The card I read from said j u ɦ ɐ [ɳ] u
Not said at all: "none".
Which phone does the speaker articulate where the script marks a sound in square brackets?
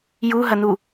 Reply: n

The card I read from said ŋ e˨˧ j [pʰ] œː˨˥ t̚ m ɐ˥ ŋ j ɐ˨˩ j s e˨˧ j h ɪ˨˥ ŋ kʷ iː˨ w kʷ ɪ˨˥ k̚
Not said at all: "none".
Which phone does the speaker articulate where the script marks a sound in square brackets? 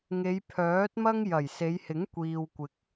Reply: pʰ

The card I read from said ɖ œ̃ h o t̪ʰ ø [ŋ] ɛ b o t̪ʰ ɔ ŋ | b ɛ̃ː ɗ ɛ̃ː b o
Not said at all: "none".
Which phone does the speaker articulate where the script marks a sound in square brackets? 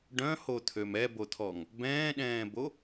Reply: m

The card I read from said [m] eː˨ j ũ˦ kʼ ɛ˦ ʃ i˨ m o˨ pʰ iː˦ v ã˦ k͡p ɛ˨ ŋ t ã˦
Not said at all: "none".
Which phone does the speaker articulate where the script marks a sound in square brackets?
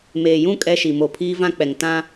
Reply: m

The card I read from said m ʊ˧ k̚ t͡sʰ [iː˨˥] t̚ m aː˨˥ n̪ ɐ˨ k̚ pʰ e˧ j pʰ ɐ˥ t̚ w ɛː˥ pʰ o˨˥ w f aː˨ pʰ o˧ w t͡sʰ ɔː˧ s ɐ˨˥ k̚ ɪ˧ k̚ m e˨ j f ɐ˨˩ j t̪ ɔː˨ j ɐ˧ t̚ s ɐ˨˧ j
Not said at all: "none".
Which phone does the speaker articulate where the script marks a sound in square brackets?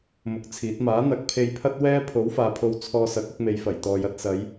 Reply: iː˨˥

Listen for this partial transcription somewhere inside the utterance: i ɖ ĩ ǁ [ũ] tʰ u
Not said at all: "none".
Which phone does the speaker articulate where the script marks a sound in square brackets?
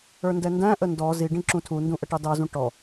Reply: ũ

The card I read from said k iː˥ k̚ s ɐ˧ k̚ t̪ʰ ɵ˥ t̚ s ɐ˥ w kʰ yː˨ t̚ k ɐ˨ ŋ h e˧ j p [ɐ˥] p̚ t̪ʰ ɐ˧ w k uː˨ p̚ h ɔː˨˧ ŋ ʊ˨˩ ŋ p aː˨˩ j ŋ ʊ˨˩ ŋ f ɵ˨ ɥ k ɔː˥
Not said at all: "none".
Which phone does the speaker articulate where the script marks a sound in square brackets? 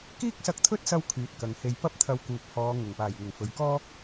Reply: ɐ˥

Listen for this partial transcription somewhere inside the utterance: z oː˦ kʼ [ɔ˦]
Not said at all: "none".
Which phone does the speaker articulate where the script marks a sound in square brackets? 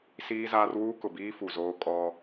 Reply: ɔ˦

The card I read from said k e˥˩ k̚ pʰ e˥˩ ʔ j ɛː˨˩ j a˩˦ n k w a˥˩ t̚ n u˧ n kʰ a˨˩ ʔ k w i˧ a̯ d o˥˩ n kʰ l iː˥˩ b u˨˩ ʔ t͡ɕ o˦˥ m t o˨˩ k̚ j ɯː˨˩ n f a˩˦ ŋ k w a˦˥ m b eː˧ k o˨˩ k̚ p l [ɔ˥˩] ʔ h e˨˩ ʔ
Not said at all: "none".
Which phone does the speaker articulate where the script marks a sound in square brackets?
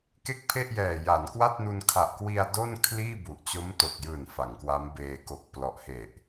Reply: ɔ˨˩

